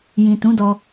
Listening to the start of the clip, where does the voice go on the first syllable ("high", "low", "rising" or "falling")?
low